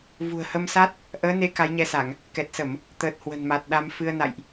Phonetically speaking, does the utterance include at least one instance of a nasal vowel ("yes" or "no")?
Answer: no